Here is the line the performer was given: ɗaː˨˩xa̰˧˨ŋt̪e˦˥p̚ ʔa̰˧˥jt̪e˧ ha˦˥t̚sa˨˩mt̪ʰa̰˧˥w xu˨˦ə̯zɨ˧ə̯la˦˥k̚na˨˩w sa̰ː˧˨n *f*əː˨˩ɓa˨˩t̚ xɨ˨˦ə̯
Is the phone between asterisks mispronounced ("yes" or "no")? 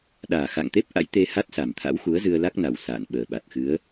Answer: yes